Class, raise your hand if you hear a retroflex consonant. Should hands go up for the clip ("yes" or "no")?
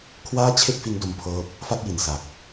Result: no